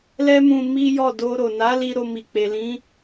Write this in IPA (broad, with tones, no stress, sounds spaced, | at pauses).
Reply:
l ɛ˦ m ũ˧ m i˦ j ɔ˦˨ d o˧ ɾ o˨ n a˨˦ l i˧ ɾ o˧ m i˨ k͡p e˨ l ĩ˨˦